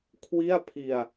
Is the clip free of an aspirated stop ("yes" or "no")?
no